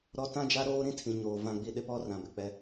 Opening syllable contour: high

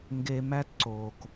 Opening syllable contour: low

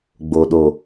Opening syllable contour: low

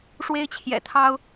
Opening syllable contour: high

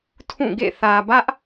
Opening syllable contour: falling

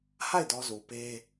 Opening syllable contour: falling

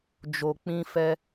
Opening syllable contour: low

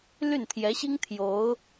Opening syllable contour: falling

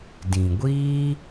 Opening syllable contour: low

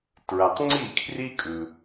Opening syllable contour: low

